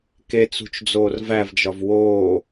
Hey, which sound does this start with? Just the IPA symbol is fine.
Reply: k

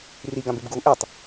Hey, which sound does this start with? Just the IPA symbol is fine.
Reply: r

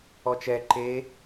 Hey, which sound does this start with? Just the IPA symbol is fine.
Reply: ɔ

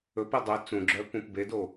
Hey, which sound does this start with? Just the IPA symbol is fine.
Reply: ɵ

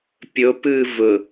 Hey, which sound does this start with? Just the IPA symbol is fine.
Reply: pʲ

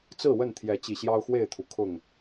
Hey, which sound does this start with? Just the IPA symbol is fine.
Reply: t͡s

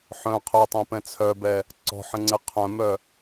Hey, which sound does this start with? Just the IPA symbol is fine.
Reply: ħ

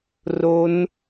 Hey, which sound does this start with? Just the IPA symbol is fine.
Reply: r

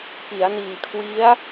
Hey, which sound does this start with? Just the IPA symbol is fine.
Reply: p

